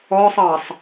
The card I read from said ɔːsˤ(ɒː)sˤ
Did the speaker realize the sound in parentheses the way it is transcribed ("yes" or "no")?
no